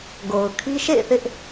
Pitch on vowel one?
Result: low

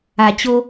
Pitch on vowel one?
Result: low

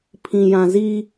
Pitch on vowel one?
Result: low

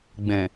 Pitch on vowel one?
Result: low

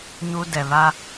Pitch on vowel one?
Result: high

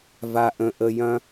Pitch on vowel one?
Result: low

